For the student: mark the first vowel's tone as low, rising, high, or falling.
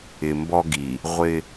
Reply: low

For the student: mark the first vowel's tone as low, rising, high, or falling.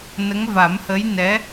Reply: rising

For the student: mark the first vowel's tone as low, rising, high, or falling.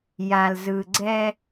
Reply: low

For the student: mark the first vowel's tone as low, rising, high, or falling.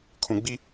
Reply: low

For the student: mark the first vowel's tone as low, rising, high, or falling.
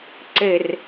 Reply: low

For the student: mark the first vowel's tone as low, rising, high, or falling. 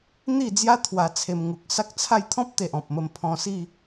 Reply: falling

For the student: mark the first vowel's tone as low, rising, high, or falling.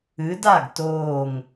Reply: rising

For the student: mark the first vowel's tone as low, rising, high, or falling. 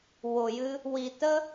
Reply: low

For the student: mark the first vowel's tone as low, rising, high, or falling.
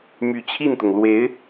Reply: low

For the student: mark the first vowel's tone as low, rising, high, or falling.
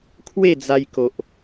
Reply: falling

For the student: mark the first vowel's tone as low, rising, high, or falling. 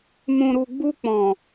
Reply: low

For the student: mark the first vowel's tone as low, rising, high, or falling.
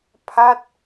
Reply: falling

